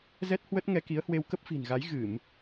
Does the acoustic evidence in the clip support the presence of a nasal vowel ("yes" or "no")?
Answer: no